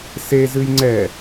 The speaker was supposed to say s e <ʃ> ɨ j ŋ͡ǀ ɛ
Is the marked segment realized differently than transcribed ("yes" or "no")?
yes